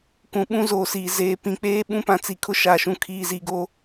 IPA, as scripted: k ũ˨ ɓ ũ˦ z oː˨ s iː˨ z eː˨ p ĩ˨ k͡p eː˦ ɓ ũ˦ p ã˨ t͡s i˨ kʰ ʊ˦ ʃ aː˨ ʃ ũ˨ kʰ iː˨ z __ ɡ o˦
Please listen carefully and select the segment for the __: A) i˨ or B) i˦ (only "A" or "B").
A